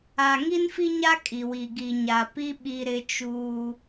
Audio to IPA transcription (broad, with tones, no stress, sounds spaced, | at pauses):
a˨ ŋ i˦ n f i˦ ɲ a˦ kʼ i˨ w i˨ ɡ i˨ ɲ a˨ p i˦ ɓ i˦ ɾ ɪ˦ t͡ʃ uː˦